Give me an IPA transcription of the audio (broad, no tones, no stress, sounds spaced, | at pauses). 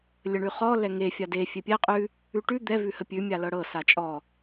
lʲ ə ɳ ʉ χ ɔ l ɛ ŋ e fʲ a d e fʲ e pʲ ɛ qʼ ʉ | ʉ ʈ ʉ d̪ ɛ v ʉ h ə pʲ ʉ mʲ a l ɤ ɽ ɤ s a t͡ʃʼ ɔ